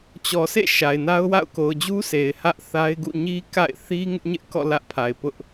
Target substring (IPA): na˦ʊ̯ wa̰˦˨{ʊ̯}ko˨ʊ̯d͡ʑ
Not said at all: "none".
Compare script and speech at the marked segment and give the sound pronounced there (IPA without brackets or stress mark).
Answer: ʊ̯